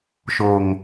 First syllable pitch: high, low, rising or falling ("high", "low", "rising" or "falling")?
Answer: low